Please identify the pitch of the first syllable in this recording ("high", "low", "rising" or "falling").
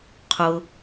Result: low